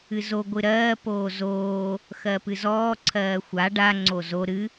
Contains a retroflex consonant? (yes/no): yes